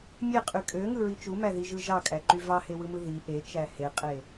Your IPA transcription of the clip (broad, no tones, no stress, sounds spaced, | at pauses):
mʲ e qʼ y kʼ ø ŋ ɯ ɹ i t͡ʃ u m æ ð i ʒ ɯ ʒ ɑ kʼ æ ǃ y v ɑ h e w ɯ m ɯ ð i ʔ e t͡ʃ æ h e qʼ e